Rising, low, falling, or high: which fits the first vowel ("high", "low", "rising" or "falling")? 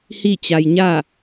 falling